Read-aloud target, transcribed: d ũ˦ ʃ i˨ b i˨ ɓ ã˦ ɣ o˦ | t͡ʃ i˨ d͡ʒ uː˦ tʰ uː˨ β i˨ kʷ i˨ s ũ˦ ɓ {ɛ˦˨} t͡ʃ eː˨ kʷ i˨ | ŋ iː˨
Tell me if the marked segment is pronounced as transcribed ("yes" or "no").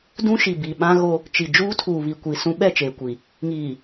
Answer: yes